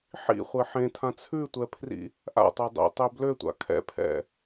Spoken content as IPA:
ħ ḭ χʷ e ħ ẽ tʰ ã t͡sʰ ʉ tʷ ɛ pʰ r ḭ | ʔ a̰ tˤ ø dˤ ḛ tˤ ø b l ø tʷ a̰ kʰ ɛ̰ pʰ ɛ̰

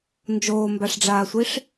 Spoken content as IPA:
n d͡ʒ oː m b a ʂ ɖ͡ʐ aː sʷ i ʂ

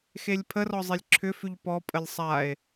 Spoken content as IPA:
x e lʲ pʰ ə r ɔ zˤ e lʲ ǁʰ ʏ f ʉ ʎ p ɔ pʼ ə lʲ sˤ a e̯

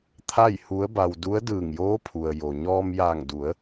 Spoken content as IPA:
t̪ʰ a˥˨ j h u˧˥ ə̯ b a˧ w d u˧˥ ə̯ d ɯː˧˩ ŋ j oː˧˥ pʰ u˩ ə̯ j o˩ ɲ ɔː˧ m j aː˧˩ ŋ d u˩˧ ə̯

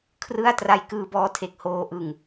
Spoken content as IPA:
kʰ r ɯ˥˩ a̯ t r a˧ j k ɯː˧ b ɔː˦˥ tʰ e˨˩ k̚ h oː˧ ʔ ɯ˧ ŋ

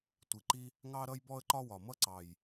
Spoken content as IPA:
tʷ i˨˩ ǃ i˦ | ŋ ɑ˦ ɾ ʌ˦ j b ɔ˦ ə̯ ǃ ɒ˦ w ɒ˨˩ m ʌ˦ ǀ ɑ˨˩ j

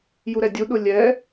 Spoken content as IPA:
j u ɾ ɛ dʲ u ɗ ʊ lʲ ɛ

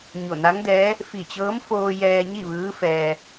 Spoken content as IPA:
ɲ o˧˩ n a˧˥ ŋ d ɛː˧˥ | f i˧˩ t͡ɕ ɤː˧˥ m f oː˧ j ɛː˧ ɲ i˥˨ ʋ ɯː˧˥ f ɛː˧

